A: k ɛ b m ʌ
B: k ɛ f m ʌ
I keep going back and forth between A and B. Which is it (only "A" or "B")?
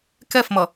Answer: B